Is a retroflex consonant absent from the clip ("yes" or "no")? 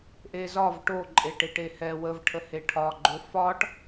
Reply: no